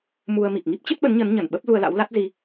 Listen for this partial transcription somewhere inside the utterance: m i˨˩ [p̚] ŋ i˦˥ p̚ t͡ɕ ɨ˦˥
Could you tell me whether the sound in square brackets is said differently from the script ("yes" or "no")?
yes